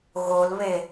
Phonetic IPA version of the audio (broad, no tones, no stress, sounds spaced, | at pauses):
ɣ o l β e